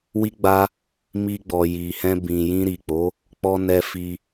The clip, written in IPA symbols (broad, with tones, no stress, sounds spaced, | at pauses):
w i˦ ɡ͡b a˦ | m i˧ ɡ͡b ɔ˨ j i˨ h ɛ̃˧ b ĩ˨ j ĩ˧ ɾ i˨ k͡p o˨˦ | k͡p ɔ˧ n ɛ˧ f i˧